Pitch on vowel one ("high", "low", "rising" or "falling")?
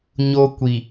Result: high